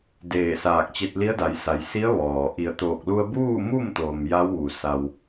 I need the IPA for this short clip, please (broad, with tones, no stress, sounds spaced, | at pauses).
d eː˧˩ s aː˧˩ k̚ t͡ɕ e˧ t̚ l i˧˥ ə̯ d a˩˧ j s a˩˧ j s i˧˥ ə̯ ʋ ɔː˩ ʔ i˧˩ ə̯ t̪ oː˧˩ k̚ l u˧ ə̯ b uː˥˨ m u˥˨ m t̪ oː˩ m j a˧˥ w ʋ u˩ s a˩ w